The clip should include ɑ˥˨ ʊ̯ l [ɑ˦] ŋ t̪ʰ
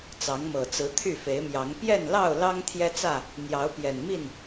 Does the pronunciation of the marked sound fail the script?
no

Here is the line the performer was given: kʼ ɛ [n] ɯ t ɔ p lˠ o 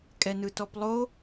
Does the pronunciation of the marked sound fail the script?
no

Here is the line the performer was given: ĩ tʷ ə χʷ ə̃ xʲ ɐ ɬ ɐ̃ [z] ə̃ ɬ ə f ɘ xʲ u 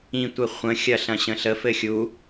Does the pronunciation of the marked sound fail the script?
yes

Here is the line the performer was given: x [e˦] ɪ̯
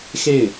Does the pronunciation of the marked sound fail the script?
yes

